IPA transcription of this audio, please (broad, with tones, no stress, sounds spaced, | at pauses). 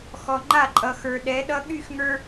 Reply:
x ɔ˨ ŋ͡ǃ a˦˨ ǃʼ ʌ˨ x ə˞˨ ɗ ɛ˨˦ ɗ ʌ˦ ɠ y˦˨ x ŋ ə˞˦